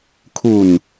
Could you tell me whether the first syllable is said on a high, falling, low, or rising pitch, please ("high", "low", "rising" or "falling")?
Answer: low